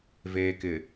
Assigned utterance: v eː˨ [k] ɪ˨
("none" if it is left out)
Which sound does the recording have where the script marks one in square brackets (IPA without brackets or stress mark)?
k